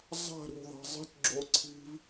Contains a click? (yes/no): yes